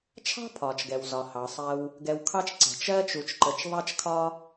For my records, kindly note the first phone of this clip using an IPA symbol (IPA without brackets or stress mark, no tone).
t͡ʃʰ